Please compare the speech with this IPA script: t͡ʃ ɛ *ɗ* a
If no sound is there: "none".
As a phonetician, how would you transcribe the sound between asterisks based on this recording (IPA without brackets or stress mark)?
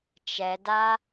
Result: d